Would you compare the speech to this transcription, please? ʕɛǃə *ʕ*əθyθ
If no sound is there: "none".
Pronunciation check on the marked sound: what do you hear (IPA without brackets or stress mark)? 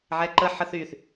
ħ